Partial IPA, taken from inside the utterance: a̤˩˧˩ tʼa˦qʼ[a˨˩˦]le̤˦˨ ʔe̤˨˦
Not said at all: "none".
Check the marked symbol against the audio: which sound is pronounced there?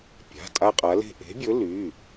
a˨˦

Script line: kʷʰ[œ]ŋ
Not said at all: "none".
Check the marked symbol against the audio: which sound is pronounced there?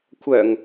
œ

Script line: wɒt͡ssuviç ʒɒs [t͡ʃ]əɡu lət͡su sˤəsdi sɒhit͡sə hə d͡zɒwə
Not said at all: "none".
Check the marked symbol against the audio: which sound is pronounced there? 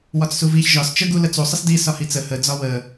t͡ʃ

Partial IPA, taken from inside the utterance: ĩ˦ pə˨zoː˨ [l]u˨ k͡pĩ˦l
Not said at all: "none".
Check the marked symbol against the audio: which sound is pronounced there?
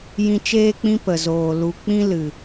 l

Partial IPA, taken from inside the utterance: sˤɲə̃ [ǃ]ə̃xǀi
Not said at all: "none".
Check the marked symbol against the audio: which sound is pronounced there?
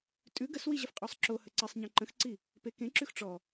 ǃ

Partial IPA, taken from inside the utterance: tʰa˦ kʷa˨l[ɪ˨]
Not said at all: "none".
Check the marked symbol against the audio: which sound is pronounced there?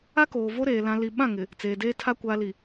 i˨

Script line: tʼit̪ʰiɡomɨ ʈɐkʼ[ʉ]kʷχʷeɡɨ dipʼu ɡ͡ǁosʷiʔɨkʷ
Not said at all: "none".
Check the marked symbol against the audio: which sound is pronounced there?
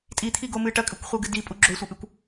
ʉ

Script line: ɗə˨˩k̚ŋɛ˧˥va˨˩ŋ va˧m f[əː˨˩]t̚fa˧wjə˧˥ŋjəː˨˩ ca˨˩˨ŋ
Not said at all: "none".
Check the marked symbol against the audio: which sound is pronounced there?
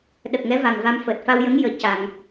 əː˨˩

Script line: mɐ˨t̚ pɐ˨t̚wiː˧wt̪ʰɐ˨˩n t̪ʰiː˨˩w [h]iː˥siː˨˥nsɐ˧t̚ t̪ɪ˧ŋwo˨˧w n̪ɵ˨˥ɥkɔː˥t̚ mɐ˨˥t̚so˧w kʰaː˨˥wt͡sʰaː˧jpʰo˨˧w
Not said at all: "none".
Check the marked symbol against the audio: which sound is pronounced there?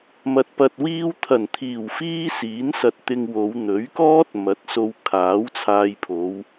f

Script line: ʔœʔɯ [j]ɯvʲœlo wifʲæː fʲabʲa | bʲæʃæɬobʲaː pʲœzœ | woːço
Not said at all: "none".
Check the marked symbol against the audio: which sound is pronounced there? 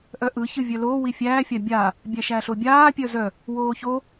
ç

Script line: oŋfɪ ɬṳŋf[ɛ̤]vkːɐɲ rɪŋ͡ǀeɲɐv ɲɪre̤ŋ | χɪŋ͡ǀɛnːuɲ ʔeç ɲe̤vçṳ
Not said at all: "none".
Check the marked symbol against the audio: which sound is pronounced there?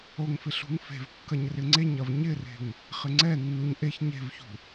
e̤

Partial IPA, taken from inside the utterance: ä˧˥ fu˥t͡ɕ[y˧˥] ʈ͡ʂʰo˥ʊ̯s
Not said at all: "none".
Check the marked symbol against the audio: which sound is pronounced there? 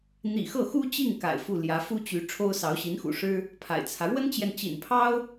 y˧˥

